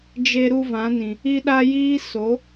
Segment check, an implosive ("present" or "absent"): present